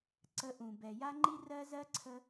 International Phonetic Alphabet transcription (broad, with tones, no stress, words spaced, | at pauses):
ǀə˧ʔũ˨bɛ˨ ja˦ŋ͡ǃi˦rɜ˦ zɜ˦ǀʰə˧